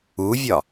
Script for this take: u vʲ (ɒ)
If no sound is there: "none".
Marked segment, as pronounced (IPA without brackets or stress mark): ɒ